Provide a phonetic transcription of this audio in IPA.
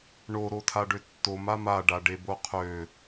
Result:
ɳ o ɾ o tʰ a ɖ ø tː o m a m a ɖ a ɖ e b o qʰ ø

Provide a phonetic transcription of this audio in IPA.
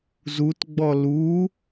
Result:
z u t ɡ͡b ɔ l u

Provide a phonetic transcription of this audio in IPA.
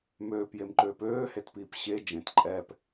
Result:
m øː p j e m ǃ øː p øː h e t p iː p ɕ e d͡ʒ ẽ t ǃʼ ɛː p

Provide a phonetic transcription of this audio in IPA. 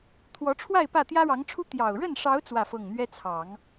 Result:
t̪ʰ w ɔ˧˥ ʈ͡ʂʰ w a˥˧ ɪ̯ p ä˥˩ t̪ j ä˥ ɻ ɑ˧˥ ŋ ʈ͡ʂʰ u˥ t̪ j ɑ˨˩ ʊ̯ ɻ ə˥˩ n ʂ ɑ˧˥ ʊ̯ t͡s w ä˥˧ f ɤ˥˩ ŋ n̪ ɥ ɛ˥ t͡sʰ ɑ˨˩˦ ŋ

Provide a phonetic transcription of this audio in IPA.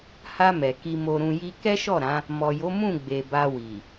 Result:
h a˧ m ɛ˨ k i˧ m o˧ ɾ ũ˧ j i˦ k ɛ˦ ʃ ɔ˦˨ ɾ ã˨˦ | m ɔ˨ j o˨˦ m ũ˦˨ ɡ͡b e˨ b a˧ w i˨

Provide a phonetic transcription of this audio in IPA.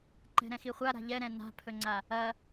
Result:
ǃ ɛ̤ ɾ ɛ̃ x i χʷ a ɾ a̤ ʎ ɛ ɾ ɛ̃ n a̤ pʰ ɵ ŋ͡ǀ a | ɐ

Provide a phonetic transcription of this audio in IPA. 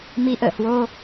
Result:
m i˨˦ ʔ ə̰ː˧˨ h w o˧

